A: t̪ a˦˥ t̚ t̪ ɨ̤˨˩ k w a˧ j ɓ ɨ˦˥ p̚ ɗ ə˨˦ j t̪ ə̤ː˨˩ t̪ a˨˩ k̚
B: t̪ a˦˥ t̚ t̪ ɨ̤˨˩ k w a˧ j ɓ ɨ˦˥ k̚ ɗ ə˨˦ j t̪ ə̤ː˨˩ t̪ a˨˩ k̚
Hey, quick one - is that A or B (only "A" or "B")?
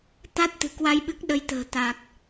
B